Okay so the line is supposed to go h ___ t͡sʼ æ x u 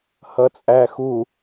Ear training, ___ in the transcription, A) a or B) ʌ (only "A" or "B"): B